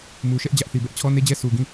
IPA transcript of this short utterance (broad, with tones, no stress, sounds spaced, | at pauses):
m u˨ ʃ ɛ˦ ʔ d͡ʑ ä˦ ʔ θ i˨ b ɛ˦ ʔ t͡ɕʰ ɔ˦ n e˦ d͡ʑ ɛ˦ sʰ u˨ ɡ ĩ˦˨